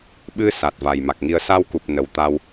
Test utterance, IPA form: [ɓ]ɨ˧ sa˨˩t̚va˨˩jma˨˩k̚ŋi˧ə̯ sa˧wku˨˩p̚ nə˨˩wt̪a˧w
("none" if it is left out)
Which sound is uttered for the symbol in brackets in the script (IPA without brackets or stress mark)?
ɓ